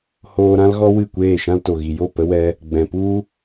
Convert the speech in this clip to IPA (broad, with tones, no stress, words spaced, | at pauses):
hoː˧ɾã˦lɣɔ˦ wɨ˦˨kʷeː˦˨ ʃã˧lto˨ɣi˨jo˦˨ pə˦wɛ˦ | ɡ͡bɛ̃˨pu˦